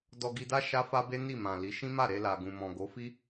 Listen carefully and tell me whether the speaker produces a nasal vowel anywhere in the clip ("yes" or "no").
yes